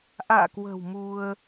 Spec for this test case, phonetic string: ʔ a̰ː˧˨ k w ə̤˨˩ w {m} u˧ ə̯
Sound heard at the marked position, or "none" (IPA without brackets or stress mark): m